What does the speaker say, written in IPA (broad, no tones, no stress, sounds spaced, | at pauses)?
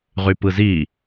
ʁ y p ɯ z i